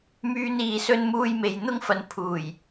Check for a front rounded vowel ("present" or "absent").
present